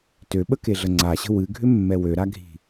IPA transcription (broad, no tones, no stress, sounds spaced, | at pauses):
t ø ɓ ə k e ɮ ə ŋ͡ǀ a ɕ ə̤ w ɨ ɡʱ ʏ mː ɛ w ø ɾ a ɡʱ i̤